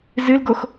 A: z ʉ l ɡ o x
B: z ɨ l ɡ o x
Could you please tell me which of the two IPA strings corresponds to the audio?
B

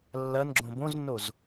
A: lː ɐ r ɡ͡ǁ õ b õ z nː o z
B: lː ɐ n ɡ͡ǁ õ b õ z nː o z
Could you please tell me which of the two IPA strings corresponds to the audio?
B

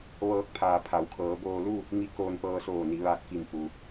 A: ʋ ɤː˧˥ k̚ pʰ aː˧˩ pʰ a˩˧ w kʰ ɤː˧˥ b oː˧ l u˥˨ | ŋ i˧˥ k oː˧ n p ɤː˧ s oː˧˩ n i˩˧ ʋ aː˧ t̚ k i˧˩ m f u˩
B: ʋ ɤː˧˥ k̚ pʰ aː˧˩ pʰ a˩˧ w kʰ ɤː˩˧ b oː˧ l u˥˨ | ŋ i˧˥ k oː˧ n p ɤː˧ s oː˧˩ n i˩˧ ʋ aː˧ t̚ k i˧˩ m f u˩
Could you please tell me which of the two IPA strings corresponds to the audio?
B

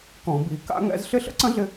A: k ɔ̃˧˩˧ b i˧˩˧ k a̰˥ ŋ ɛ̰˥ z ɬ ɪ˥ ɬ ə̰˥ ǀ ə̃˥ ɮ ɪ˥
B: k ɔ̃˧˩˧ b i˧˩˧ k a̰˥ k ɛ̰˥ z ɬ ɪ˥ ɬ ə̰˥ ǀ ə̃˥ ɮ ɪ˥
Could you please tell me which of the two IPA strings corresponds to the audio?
A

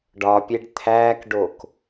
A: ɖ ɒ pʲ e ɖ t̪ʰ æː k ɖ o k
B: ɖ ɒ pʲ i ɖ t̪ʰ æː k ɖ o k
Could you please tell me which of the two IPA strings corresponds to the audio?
A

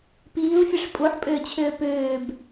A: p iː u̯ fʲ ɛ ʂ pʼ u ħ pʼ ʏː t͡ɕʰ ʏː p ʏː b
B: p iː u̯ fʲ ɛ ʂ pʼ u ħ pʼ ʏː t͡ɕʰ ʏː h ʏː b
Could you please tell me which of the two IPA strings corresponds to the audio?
A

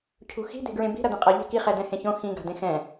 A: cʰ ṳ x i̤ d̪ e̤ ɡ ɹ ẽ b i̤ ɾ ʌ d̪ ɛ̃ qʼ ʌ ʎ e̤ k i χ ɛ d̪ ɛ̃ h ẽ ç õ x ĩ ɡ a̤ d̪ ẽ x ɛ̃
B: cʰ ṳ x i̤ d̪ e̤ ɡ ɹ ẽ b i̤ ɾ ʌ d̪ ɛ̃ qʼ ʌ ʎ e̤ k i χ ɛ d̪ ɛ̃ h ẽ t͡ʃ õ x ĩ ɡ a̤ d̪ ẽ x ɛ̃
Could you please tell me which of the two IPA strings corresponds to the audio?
A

